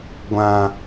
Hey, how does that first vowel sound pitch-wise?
high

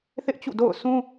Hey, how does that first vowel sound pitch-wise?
high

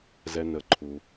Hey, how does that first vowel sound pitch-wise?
low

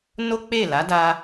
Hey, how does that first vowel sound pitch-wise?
high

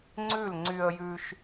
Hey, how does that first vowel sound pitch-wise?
falling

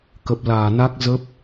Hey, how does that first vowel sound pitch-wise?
low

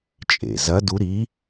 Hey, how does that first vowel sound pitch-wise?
low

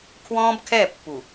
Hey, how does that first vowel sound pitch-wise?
high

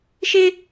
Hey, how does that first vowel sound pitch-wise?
high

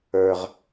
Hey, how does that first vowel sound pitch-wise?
low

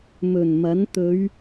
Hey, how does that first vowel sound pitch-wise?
low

